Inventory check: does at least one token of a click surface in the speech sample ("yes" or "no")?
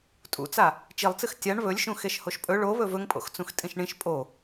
no